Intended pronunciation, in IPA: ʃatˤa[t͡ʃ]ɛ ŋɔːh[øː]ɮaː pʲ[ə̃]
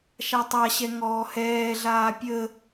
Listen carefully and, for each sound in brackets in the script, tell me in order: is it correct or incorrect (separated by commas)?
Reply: incorrect, incorrect, incorrect